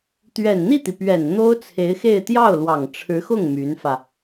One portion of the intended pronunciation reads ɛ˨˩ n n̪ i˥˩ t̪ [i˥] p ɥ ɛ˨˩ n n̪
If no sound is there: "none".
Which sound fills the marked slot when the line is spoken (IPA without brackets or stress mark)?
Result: i˩